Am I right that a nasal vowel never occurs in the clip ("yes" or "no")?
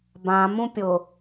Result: no